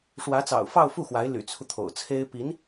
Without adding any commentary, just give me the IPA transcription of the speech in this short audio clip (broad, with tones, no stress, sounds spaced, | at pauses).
ʂ w ä˧˥ t͡s ɑ̰˨˩ ʊ̯ f ɑ˥˧ ʊ̯ f u˥˩ x w a˧˥ ɪ̯ l y̰˨˩ t͡sʰ u˦ t̪ʰ o̰˨˩ ʊ̯ t͡sʰ e˥ ɪ̯ p i˧˥ n